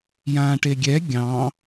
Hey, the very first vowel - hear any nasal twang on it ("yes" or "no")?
yes